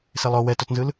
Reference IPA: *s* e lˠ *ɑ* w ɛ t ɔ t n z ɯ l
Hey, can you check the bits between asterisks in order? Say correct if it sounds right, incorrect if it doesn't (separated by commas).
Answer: correct, incorrect